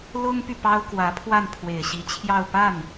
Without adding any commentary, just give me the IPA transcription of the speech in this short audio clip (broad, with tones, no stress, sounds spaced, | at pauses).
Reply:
l ʊ˥ ŋ p y˨ p ɑ˥ ʊ̯ k w ä˧˥ pʰ w a˥˩ n pʰ w e˨˩ ɪ̯ ɕ i˧˥ t͡ɕʰ j ɑ˥˧ ʊ̯ p a˥˩ n